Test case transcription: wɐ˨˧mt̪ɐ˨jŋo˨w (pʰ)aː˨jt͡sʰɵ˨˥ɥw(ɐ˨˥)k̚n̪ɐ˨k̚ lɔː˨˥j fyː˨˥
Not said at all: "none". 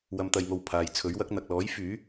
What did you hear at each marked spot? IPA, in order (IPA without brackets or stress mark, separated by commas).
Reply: pʰ, ɐ˨˥